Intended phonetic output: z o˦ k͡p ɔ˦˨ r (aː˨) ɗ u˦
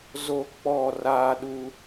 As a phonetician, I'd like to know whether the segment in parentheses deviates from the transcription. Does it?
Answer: yes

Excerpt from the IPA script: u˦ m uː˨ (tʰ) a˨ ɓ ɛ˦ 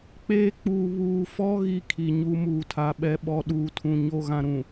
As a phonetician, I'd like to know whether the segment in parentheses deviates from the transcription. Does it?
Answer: no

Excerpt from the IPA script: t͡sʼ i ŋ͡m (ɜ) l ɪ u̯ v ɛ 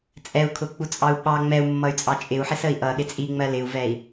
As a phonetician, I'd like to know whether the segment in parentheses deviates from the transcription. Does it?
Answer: no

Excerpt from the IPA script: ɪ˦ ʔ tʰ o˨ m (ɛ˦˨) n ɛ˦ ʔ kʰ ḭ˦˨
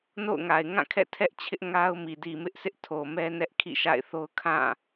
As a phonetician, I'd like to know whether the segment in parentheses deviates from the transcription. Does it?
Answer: yes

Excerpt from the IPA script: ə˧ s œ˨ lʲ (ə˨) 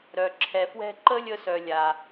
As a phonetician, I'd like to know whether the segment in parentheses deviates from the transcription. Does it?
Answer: yes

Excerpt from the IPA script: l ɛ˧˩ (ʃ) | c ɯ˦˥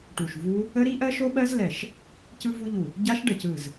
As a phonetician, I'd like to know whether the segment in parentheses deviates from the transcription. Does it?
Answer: no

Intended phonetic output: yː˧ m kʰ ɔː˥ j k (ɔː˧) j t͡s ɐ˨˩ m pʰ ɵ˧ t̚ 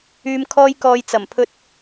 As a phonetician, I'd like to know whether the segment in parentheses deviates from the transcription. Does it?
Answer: no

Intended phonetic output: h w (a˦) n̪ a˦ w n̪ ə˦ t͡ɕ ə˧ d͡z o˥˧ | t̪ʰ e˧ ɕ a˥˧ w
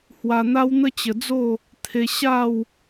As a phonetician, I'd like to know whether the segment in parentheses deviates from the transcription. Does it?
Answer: yes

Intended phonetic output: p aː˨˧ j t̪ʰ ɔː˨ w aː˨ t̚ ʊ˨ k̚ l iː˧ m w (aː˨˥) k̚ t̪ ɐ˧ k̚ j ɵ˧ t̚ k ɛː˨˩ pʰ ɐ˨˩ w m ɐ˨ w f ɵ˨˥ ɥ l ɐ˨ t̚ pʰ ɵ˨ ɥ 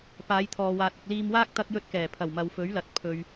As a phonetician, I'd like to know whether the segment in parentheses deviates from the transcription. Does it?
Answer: yes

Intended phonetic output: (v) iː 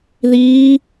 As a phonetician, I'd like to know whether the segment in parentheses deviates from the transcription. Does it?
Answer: yes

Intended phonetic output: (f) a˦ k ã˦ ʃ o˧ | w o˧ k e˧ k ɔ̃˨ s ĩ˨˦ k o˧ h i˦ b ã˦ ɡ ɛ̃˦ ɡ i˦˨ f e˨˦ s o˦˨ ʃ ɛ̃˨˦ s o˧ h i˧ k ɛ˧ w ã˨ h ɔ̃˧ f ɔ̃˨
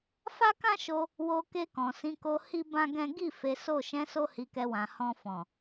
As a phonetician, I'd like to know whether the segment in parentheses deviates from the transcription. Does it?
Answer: no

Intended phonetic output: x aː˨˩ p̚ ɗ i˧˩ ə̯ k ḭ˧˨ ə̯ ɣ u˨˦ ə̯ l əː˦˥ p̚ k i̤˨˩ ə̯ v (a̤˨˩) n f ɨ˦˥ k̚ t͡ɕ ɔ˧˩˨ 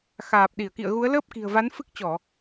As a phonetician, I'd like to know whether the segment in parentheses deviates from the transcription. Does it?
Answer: yes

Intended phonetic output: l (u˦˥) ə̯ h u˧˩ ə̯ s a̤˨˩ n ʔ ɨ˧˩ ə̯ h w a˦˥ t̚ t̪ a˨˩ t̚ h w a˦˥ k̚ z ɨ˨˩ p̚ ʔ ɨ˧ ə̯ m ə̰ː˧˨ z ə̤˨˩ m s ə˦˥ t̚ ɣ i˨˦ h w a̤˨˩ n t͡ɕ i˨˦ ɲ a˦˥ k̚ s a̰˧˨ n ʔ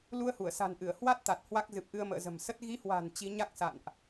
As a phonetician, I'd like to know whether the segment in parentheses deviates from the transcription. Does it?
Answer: yes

